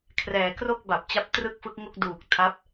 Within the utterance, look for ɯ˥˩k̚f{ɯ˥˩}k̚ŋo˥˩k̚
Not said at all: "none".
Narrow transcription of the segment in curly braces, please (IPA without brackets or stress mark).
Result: ɯ˦˥